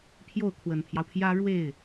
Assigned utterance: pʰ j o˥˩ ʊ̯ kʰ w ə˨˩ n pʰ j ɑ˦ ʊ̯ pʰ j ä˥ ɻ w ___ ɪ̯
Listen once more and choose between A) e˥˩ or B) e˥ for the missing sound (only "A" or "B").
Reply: A